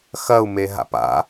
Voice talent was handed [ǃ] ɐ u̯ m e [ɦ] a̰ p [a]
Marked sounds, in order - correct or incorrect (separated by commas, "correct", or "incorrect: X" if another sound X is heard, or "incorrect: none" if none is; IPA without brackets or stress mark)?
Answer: incorrect: x, correct, incorrect: a̰